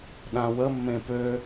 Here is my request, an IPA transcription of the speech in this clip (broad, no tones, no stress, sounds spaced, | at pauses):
ɗ ã w ə mː ẽ p ø